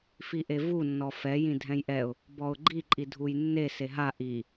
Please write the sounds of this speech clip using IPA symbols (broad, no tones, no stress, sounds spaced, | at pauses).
f i ʔ e v u nː ɔ f ɛ j ĩ dʱ ɛ̃ j ʔ ɛ ʊ̯ | b ɔ ʊ̯ ɡ͡ǃ i ǃʼ i dʱ u j nː e s e ɦ a ʔ i